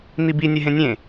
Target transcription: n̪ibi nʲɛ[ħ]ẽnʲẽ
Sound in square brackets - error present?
yes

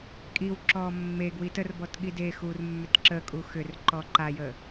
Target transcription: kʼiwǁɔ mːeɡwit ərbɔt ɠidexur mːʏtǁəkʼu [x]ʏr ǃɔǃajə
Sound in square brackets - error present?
no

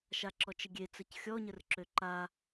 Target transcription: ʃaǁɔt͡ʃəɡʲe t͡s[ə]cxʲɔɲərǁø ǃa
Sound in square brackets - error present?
no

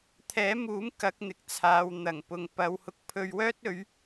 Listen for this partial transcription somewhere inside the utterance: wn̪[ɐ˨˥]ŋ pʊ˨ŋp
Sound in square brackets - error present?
yes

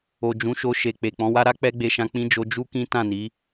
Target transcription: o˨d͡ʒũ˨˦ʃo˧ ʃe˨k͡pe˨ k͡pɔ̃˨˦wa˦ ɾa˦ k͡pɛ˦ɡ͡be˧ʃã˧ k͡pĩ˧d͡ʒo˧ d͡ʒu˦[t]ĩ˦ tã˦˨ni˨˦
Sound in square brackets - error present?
yes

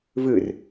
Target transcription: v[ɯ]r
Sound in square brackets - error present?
no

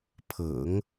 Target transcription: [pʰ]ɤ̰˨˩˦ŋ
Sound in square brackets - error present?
no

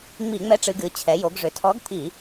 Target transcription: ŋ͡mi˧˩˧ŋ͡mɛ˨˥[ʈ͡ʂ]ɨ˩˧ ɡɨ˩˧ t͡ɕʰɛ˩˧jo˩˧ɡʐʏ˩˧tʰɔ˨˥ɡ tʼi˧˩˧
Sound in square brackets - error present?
no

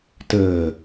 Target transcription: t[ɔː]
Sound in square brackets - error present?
yes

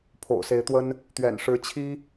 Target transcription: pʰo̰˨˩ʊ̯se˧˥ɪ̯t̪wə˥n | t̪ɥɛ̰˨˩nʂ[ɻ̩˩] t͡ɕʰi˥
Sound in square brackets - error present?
yes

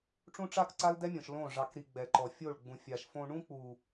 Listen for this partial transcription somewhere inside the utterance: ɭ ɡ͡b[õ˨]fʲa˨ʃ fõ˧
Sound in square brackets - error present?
yes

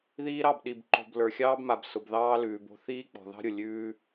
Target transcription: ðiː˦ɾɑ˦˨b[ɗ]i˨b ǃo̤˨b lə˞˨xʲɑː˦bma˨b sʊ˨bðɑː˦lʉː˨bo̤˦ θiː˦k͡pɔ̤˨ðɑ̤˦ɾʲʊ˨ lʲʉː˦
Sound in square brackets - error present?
no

